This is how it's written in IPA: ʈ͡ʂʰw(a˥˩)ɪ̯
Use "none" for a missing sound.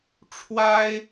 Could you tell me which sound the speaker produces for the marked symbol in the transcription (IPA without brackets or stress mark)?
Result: a˥